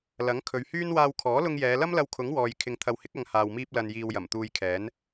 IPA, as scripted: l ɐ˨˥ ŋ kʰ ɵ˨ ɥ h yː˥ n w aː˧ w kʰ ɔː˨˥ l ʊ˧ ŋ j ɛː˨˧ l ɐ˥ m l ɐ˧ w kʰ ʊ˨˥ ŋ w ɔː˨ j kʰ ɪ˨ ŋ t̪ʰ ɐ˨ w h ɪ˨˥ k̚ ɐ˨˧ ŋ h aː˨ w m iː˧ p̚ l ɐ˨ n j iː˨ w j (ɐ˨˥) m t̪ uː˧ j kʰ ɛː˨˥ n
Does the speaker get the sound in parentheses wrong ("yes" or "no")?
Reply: yes